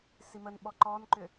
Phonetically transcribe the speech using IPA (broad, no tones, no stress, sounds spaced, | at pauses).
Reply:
s i m ə n ɓ ɔ ǃ ɔ n ǃ ʏ